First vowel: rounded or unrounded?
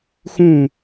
rounded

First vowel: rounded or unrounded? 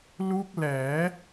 rounded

